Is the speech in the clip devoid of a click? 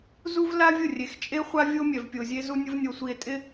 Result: yes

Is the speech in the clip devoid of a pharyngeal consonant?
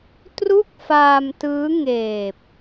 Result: yes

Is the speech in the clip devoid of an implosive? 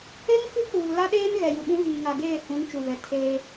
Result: no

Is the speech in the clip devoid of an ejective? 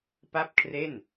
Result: yes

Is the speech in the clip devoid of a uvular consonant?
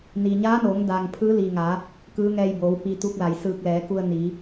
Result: yes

